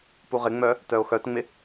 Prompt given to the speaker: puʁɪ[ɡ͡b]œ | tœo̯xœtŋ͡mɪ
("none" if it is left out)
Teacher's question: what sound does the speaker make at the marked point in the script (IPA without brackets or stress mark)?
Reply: ŋ͡m